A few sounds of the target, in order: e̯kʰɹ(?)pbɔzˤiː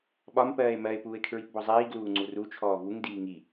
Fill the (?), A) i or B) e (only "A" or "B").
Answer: A